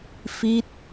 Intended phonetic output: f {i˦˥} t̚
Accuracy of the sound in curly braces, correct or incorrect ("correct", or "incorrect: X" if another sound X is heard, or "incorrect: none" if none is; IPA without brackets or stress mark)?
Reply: correct